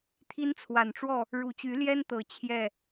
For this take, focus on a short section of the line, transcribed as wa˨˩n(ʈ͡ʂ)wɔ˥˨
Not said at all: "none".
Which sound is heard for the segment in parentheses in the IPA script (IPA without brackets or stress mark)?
ʈ͡ʂ